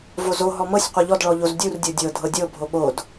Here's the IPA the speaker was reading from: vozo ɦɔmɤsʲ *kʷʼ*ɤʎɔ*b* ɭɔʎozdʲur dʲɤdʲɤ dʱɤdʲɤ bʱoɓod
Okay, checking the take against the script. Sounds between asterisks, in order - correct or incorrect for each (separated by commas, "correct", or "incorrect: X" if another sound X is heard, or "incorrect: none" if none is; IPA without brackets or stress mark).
incorrect: qʷ, incorrect: d